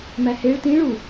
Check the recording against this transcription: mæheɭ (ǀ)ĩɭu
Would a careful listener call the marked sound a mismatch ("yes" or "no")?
yes